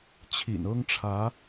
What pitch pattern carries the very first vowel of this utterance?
low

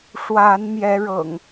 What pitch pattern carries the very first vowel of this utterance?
rising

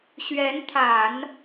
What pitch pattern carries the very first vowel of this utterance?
rising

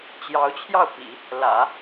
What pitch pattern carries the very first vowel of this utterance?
rising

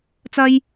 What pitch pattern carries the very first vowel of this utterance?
high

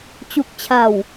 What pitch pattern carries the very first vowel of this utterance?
low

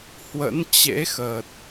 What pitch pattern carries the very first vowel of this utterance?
rising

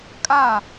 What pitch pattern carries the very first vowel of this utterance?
falling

